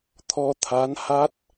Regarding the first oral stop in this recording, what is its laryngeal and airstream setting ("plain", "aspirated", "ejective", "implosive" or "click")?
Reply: aspirated